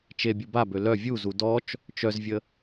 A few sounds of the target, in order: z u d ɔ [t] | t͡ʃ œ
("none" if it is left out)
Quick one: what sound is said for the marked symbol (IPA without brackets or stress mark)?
t͡ʃ